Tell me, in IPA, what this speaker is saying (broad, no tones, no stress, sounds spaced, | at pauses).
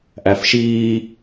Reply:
ʔ æ f ʃ iː